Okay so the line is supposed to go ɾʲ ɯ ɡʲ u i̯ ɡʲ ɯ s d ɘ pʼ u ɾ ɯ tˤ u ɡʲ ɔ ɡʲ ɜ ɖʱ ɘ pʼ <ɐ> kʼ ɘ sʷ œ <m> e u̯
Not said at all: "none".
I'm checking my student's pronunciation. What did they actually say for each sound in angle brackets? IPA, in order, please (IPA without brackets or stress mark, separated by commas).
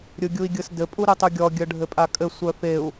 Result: a, f